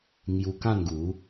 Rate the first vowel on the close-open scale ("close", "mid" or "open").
close